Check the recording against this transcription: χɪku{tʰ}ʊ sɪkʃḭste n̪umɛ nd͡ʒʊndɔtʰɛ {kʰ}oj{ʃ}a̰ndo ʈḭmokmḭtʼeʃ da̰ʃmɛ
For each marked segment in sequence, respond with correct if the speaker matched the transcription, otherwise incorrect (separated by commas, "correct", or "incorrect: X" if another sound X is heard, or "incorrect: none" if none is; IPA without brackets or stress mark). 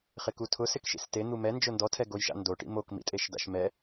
correct, incorrect: ɡ, correct